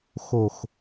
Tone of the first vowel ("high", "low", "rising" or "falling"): low